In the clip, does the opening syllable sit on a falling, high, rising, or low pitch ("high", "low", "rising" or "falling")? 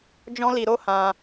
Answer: high